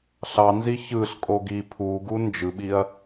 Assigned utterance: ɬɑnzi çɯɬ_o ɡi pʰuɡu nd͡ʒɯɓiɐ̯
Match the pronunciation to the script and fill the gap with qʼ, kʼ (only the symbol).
kʼ